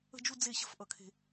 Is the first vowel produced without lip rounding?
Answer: yes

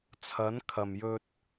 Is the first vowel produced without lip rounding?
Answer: yes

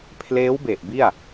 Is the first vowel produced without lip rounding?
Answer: yes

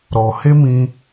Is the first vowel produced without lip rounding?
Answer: no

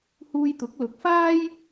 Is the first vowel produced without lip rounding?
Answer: no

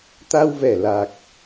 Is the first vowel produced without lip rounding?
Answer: yes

